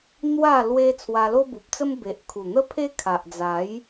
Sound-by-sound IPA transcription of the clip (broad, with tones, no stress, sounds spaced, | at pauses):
n̪ w a˥˧ l w e˦ t͡sʰ w a˧ l o˦ b u˨ p̚ t͡s ə˦ m b e˨ ʔ kʰ u˨˩ n̪ ə˦ pʰ e˦ kʰ a˨ ʔ d͡z a˨˦ j